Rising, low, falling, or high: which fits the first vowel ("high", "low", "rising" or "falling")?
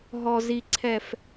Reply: low